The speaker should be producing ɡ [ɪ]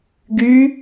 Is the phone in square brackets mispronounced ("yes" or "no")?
yes